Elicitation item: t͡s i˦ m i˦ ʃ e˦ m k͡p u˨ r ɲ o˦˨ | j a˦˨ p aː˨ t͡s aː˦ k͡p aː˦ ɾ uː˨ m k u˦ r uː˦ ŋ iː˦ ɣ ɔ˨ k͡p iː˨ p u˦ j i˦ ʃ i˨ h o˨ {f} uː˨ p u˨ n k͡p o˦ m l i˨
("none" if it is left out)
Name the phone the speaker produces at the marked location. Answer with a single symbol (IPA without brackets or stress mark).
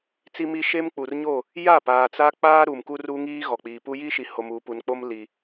m